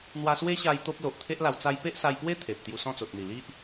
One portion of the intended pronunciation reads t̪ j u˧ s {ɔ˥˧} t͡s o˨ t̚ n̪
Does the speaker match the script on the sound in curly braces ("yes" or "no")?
no